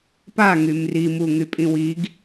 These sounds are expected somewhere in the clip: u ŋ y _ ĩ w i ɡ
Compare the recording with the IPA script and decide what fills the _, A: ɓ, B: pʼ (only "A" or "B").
B